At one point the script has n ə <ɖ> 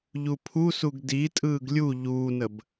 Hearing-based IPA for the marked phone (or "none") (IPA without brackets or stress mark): b